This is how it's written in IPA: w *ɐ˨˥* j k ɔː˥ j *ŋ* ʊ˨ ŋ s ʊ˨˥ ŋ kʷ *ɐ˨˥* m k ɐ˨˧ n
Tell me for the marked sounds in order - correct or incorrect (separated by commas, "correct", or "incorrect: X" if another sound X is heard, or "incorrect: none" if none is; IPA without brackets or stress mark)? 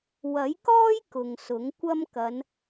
correct, incorrect: k, incorrect: ɐ˥